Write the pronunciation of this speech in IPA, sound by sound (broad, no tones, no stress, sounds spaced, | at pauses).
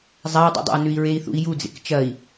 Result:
zˤ a u̯ dˤ ḭ dˤ a̰ u̯ n ʉ i̯ ɹ e i̯ θ ṵ i̯ j u d͡z ḛ k t͡ʃ ɐ i̯